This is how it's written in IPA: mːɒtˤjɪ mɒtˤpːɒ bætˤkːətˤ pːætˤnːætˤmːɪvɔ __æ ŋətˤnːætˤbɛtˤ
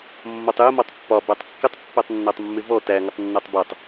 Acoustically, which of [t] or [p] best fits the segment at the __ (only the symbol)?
t